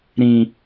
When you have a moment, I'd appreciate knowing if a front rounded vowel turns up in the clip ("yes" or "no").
no